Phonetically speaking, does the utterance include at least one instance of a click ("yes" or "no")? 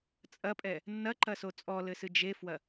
yes